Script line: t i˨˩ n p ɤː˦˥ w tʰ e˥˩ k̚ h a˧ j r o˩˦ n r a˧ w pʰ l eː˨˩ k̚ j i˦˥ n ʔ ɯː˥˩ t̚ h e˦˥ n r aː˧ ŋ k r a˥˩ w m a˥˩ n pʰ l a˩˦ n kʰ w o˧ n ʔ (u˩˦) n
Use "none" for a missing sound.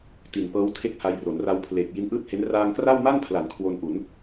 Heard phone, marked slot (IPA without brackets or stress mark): u˩˦